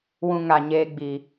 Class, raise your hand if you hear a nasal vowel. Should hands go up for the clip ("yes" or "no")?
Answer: yes